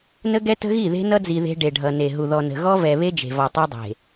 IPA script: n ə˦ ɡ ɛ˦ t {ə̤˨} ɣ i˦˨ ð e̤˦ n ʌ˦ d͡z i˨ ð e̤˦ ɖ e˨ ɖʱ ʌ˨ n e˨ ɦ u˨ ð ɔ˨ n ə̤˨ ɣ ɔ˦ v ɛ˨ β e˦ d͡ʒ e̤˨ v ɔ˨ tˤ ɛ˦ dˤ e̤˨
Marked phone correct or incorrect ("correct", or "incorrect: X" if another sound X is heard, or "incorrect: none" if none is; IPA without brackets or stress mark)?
incorrect: ə̤˦